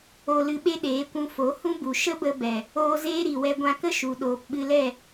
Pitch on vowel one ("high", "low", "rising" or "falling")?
low